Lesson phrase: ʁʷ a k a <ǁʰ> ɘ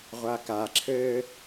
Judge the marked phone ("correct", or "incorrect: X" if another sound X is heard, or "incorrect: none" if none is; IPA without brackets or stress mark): correct